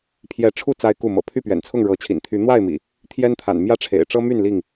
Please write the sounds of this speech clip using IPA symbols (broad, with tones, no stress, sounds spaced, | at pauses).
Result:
pʰ j ɛ˨˦ ʈ͡ʂʰ u˥˨ t͡s a˦ ɪ̯ k u˥˨ m ɤ̰˨˩ pʰ y˥˨ p ɥ ɛ̰˨˩ n t͡sʰ ʊ˥˨ ŋ ɻ ɤ˨˦ t͡ɕʰ ḭ˨˩ n t̪ʰ y˨˦ n̪ w a˥˨ ɪ̯ m ḭ˨˩ | t̪ʰ j ɛ˦ n t̪ʰ a̰˨˩ n m j ä˦ ʈ͡ʂʰ ḛ˨˩ ɪ̯ ʈ͡ʂ ɤ˦ m y˥˨ n l i˥˨ ŋ